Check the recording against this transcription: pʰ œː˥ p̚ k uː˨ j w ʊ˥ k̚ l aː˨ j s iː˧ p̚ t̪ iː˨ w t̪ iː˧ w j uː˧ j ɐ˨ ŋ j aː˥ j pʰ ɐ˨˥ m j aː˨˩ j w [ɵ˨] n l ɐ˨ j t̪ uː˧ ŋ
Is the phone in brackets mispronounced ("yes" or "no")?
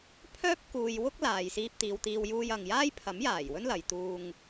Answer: yes